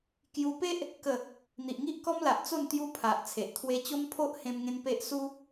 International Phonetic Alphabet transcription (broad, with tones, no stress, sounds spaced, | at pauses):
k j u˧ p e˦ ʔ | k ə˥˧ | n̪ i˨ ʔ ŋ i˦ ʔ k ɔ˦ m l a˨ ʔ t͡s o˥˧ n t̪ j u˦ pʰ a˨ ʔ t͡sʰ e˨ ʔ t̪ʰ w e˧ t͡ɕ o˦ m pʰ o˦ ʔ h ẽ˧ m ŋ ẽ˧ n p e˦ ʔ s u˦